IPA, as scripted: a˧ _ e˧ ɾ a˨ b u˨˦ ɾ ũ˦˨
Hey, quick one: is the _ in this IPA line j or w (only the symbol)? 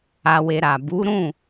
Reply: w